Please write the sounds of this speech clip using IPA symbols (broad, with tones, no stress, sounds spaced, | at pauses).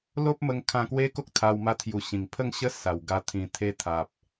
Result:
l o˦ p̚ m ə˧ ŋ kʰ ã˧ k w e˦ k o˦ k̚ t̪ʰ a˧ w m a˧ t̪ʰ j u˨˩ ɕ ĩ˨˩ ŋ pʰ ə˥˧ ŋ ɕ ə˦ s a˨˩ w ɡ a˧ t̪ʰ ĩ˨˩ t̪ʰ e˧ t̪ʰ a˨ p̚